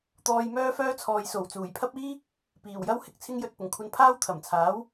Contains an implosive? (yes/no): no